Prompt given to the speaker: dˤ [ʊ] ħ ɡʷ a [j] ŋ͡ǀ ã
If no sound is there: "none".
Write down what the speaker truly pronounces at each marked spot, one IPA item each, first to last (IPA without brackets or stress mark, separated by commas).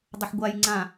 ə, j